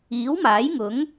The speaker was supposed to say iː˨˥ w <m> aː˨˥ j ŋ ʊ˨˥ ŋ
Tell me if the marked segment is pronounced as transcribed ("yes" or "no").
yes